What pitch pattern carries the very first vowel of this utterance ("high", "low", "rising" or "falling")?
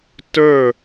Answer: falling